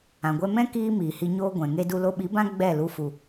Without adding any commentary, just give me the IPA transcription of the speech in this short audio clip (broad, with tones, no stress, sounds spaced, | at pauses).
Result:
ã˨ ɡʷ ɛ˧ m ɛ̃˦ k iː˦ m iː˨ h i˧ ɲ oː˦ ɡʷ ɛ̃˨ ŋ e˧ d u˧ l o˧ ɓ i˨˦ b ã˦ ɡ͡b ɛ˦˨ l u˧ f u˨